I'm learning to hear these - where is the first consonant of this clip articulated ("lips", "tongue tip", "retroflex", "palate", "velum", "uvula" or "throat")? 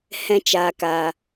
throat